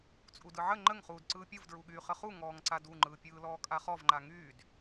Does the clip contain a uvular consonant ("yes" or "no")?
yes